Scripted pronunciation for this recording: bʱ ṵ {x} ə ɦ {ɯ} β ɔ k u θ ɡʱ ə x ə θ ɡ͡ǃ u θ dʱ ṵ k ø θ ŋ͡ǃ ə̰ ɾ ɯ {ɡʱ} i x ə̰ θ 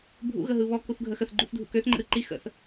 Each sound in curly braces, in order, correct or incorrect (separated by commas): incorrect, correct, incorrect